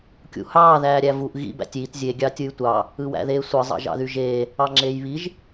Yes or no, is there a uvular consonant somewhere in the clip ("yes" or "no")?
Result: no